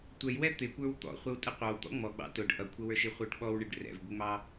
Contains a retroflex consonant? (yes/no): yes